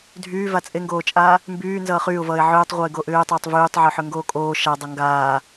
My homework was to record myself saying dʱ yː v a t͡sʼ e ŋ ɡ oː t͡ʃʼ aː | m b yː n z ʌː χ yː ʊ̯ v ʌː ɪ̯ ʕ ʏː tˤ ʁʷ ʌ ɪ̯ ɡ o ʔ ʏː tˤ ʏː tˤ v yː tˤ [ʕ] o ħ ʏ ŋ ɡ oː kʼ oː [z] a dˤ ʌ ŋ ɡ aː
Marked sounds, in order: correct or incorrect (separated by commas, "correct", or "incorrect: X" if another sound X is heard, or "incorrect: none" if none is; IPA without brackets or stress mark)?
correct, incorrect: ʃ